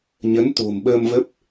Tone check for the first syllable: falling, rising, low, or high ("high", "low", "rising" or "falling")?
rising